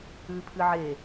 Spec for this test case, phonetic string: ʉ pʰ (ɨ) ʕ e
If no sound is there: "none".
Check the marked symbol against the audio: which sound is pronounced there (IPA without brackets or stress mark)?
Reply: ɨ